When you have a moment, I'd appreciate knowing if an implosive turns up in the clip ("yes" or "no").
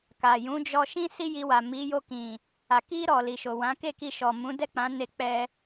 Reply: no